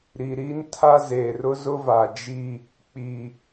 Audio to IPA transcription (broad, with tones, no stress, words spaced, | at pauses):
ɾi˨ɾiː˦n tʰa˦zeː˨r ʊ˦zʊ˦va˨ d͡ʒi˦ | k͡pi˨